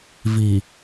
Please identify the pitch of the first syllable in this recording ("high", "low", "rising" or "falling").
low